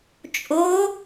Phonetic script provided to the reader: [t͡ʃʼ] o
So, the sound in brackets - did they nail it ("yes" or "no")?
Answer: yes